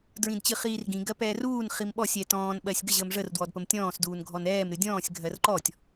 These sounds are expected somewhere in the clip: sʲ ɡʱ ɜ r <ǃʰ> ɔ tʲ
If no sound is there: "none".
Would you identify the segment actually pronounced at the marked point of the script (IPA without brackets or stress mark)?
ǃ